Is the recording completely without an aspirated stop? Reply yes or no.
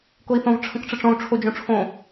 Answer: no